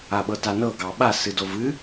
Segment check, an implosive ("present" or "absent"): present